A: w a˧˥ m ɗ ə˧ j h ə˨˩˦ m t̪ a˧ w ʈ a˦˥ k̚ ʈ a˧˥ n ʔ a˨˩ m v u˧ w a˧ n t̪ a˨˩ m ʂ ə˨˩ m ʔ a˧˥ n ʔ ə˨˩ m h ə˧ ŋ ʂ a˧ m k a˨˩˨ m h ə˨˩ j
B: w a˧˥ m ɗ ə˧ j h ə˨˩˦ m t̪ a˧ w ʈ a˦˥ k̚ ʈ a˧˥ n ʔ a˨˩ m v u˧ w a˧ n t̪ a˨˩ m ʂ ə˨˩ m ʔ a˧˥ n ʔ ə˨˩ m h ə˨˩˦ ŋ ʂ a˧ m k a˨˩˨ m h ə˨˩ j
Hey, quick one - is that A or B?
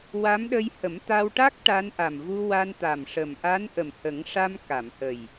B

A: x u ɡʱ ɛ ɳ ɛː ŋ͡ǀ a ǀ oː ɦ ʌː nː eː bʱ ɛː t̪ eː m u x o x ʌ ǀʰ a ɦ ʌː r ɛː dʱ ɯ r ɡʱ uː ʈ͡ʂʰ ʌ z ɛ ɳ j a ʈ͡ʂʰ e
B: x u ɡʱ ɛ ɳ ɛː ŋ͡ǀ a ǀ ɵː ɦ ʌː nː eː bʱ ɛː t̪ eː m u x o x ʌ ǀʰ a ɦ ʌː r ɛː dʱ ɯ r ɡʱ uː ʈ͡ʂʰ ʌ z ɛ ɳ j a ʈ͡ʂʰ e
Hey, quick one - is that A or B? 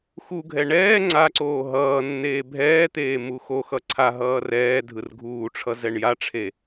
A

